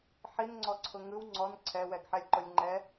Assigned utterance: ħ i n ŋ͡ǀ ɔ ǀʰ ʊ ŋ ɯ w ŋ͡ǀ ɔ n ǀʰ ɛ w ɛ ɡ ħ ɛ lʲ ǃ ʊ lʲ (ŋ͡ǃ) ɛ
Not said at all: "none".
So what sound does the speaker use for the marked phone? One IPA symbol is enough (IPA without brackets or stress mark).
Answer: ŋ͡ǃ